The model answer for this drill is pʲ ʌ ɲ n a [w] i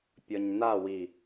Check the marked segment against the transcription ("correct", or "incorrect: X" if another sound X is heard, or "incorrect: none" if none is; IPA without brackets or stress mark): correct